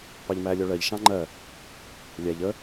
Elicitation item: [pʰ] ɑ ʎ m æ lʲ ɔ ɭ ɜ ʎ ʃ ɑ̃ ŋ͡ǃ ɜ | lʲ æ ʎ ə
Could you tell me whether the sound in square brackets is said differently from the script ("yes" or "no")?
yes